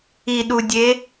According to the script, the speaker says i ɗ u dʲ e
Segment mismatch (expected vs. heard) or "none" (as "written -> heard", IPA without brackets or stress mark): none